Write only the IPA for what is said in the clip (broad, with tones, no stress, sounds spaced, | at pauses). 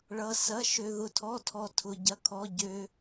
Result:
ɭ ʌ˧ s ɐ˧˥˧ ʃ ø˧ ð ʊ˧ tʰ ɔ˧˥˧ tʰ ɔ˧ tʰ ʊ˧ ɟ ɐ˧˥˧ kʰ ɔ˧˥˧ ɟ ø˧